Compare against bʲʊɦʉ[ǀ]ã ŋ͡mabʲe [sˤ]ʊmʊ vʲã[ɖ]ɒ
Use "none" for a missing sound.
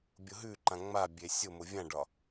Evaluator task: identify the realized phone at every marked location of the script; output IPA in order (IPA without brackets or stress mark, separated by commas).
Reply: ǃ, sʲ, ɖ